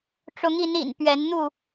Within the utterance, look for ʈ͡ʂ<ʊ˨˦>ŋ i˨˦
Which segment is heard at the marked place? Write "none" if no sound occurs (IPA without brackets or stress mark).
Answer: ʊ˨˦